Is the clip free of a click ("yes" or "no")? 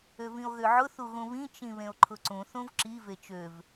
no